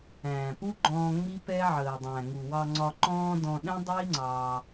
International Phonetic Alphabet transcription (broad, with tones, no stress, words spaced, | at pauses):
æ̃ː˩pu˥ ɡ͡ǃɔ̃ː˧ ŋ͡mi˥pɛ˥ʕəː˩ dˤæ̃˩ ŋu˩wɑ˧ŋ͡ǀɒ˧ ǃɔ̃ː˥dɔ̃˧ ɗɛ̃˥dˤi˥ ŋ͡ǀɑ˧